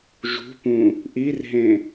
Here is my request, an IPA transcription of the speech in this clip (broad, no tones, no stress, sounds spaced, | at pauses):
ʒ ṳ p ũ | ʔ i r ɦ ẽ